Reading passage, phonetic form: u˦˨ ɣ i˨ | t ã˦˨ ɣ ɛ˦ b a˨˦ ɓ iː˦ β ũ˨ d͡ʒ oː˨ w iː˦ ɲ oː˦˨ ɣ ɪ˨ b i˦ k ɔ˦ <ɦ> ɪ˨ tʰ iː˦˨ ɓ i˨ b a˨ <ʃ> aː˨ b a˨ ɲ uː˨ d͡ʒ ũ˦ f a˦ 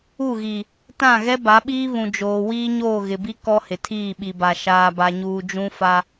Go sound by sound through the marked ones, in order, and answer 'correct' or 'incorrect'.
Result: incorrect: h, correct

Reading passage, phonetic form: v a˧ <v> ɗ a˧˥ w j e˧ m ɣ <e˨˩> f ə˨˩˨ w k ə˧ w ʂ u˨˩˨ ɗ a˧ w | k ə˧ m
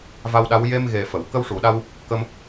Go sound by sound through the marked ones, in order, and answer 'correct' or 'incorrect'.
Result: incorrect: w, correct

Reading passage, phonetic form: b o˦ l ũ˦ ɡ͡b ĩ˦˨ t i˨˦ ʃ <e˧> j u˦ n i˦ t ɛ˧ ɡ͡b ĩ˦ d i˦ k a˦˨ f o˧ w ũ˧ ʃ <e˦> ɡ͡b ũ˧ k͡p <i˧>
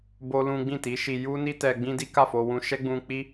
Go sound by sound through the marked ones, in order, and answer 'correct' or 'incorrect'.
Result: incorrect: i˧, incorrect: ɛ˦, incorrect: i˦

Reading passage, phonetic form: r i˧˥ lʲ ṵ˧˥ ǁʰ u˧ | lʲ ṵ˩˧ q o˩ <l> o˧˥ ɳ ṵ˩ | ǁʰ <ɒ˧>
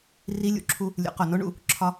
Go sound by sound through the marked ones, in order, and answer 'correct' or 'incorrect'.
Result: incorrect: n, correct

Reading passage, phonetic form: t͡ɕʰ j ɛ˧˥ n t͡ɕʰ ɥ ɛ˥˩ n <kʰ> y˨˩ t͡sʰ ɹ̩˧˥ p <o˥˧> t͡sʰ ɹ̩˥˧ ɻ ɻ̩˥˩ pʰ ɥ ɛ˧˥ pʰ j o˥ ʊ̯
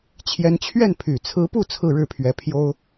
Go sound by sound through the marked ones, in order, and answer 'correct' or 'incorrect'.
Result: incorrect: pʰ, incorrect: u˥˧

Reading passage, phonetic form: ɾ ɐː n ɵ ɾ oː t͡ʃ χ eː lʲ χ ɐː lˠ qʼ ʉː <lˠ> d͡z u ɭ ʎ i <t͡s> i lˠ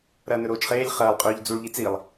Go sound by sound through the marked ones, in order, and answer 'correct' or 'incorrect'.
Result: incorrect: ʎ, correct

